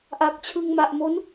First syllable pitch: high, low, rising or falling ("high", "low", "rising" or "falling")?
low